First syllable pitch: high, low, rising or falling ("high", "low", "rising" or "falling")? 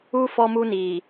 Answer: high